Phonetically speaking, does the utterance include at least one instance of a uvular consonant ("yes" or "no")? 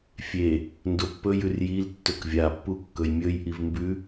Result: no